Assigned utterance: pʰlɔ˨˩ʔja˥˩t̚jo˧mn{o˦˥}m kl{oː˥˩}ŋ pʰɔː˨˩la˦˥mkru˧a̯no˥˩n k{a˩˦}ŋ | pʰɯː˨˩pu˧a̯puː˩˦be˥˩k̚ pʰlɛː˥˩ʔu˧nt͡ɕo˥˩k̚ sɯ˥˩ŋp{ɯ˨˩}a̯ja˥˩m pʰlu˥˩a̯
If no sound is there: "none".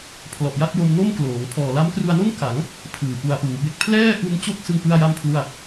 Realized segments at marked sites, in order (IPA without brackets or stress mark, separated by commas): o˥˩, oː˩˦, a˩˦, ɯ˥˩